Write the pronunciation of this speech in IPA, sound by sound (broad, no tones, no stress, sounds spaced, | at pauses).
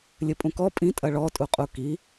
lʲ ɘ pʼ ũ k ɔ pʼ ĩ tʼ ɐ ɭ ɔ tʼ u qʼ u k i